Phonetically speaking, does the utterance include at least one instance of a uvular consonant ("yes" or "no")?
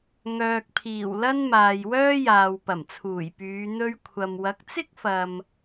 no